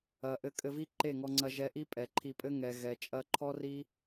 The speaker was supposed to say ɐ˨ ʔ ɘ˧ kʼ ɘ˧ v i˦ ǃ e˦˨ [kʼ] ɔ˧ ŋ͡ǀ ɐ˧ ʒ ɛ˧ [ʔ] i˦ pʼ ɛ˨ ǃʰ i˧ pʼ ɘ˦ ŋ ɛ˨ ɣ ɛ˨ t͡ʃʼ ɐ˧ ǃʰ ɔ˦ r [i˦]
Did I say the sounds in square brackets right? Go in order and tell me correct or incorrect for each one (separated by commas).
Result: incorrect, correct, correct